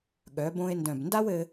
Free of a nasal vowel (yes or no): no